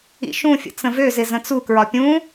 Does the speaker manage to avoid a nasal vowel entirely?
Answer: no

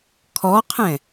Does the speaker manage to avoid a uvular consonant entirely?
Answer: no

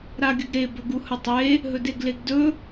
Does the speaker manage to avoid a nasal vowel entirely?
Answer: yes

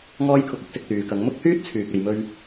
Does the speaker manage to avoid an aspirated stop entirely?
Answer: no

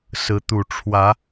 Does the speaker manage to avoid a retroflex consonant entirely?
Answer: no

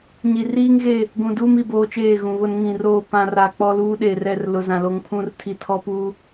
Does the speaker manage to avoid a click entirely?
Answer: yes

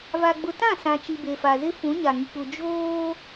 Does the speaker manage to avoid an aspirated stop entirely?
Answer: yes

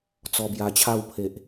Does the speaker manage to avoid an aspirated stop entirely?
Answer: no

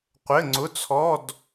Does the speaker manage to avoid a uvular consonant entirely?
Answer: no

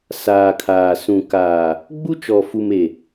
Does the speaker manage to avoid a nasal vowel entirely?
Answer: no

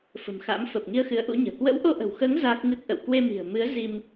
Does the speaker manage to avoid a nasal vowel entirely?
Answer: yes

